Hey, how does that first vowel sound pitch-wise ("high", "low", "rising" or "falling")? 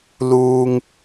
high